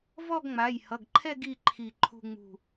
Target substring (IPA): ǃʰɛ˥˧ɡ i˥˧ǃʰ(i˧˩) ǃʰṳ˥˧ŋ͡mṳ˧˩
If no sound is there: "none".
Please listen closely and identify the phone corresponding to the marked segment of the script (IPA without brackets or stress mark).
i˧˩